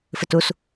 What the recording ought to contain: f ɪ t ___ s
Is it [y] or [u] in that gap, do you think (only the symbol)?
u